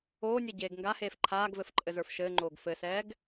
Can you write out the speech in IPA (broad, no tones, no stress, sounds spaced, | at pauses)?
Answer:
oː nʲ ɛ ɟ eː ɡ ŋ ɡ a h eː f ǃʰ aː ɡ v ɘ f ǃʼ ɘ z ə˞ f ʃ ɘː ŋ͡ǃ oː ɡ f ɘ s ɛː ɡ